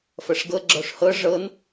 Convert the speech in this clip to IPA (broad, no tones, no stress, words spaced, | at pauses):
fɐʂɡɤ ɡ͡ǁɔʂhɤ ʐɤn